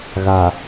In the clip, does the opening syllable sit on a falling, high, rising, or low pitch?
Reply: low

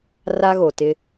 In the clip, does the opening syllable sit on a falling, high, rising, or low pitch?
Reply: high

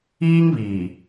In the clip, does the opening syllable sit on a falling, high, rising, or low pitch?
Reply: high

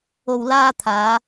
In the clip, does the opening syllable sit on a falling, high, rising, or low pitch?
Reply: low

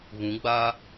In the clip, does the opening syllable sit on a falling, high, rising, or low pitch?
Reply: rising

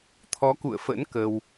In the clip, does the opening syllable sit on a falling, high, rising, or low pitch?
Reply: rising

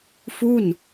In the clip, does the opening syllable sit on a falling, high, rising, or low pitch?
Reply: falling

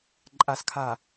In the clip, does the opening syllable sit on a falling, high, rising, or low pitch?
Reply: low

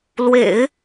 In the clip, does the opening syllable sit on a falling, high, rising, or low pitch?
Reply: low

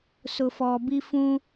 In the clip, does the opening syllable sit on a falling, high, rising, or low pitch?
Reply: low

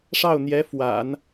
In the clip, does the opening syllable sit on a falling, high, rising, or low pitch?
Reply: falling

